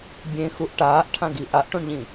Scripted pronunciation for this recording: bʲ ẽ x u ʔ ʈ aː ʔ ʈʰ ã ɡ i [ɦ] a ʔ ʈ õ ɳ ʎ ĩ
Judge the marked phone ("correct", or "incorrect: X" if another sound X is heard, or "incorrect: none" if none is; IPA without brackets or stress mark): incorrect: ʔ